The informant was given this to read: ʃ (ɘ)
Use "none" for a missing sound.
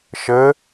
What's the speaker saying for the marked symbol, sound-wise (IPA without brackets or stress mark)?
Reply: ɘ